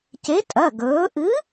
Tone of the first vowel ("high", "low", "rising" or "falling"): rising